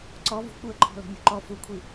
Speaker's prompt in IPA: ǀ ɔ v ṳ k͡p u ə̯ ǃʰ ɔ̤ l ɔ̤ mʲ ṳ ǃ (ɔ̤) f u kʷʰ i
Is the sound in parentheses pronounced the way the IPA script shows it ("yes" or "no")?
no